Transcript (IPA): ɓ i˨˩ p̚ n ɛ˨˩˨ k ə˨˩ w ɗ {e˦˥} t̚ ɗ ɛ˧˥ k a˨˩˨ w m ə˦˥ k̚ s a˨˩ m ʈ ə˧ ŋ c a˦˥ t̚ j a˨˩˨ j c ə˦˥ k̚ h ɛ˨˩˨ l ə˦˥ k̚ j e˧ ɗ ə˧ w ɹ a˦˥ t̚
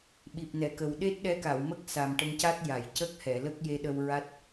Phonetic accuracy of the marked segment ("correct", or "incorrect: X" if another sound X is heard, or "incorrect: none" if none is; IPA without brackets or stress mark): correct